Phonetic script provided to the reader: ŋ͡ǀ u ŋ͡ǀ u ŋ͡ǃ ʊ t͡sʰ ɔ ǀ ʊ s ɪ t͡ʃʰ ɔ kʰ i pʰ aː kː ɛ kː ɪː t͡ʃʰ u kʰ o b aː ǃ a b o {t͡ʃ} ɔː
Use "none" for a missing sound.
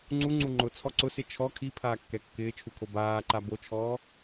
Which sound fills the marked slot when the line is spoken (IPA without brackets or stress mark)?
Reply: t͡ʃʰ